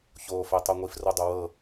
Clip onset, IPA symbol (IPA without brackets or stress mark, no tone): ç